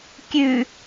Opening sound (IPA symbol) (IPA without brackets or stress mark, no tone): kʲ